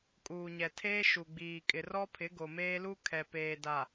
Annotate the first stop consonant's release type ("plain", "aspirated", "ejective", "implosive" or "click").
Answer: ejective